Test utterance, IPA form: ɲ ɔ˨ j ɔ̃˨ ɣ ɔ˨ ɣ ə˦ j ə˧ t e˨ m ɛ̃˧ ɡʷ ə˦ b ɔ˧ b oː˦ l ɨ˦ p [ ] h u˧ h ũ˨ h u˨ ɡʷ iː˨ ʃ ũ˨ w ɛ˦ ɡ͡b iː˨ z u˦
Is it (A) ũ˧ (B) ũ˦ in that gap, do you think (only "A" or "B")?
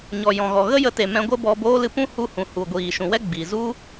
B